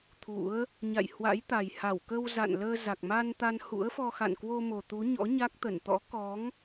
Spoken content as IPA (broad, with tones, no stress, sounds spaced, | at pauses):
t̪ʰ ṵ˧˥ ə̯ | ɲ a̰˧˨ j h w a̰˧˥ j t̪ a˨˩ j h a˧˩ w k ə˧ w z a̰˧˨ n l əː˧ z a˨˩ k̚ m a˧ n t̪ a˧ n h ṵ˧˥ ə̯ f ɔ˧ x a̰˧˨ n k w o˧ m o˨˩ t̪ u˨˦ ɲ ɔ̰˧˥ ɲ a˦˥ k̚ t̪ ə˧˩ n t̪ ɔ̰˧˥ k ɔ˨˦ ŋ